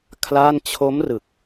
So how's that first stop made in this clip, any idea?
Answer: aspirated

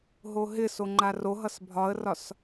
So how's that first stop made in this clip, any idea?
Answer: click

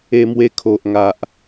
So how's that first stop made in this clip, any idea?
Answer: aspirated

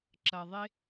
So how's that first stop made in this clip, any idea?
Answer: click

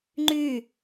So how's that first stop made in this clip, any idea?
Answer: click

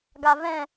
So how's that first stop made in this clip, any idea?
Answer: plain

